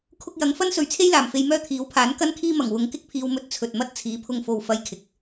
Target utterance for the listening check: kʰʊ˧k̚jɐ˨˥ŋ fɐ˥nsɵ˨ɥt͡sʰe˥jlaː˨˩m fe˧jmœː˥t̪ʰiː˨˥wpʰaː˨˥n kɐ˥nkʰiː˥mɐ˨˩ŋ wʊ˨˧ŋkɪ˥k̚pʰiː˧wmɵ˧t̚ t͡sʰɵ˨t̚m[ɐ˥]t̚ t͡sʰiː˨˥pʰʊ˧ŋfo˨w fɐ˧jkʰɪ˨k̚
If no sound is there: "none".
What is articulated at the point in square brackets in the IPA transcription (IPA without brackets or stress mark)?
ɐ˥